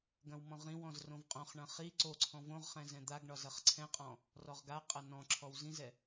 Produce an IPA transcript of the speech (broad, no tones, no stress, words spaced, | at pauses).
ɡɐ̃wmɔ̃ʁĩwɔ̃z rõvqʼõχɳɐ̃ χi ǀoǀʰɔ̃ võʁχɛ̃ zɛ̃d̪aɡɳɒ zɐχǀʰɛ̃qʼɔ̃ | rɔʁɡaqʼɐ nɔ̃ǁʰɔw zĩzɛ